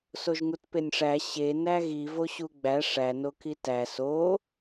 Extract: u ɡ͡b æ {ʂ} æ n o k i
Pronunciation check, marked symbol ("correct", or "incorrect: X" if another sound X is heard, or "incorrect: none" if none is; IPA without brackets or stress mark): correct